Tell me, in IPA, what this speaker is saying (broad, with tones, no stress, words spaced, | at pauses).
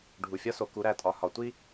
ɖʱu˩fʲɒ˥so˩ ku˩˧ɾæ˩tʼɒ˩ hɒ˩˧tʷi˥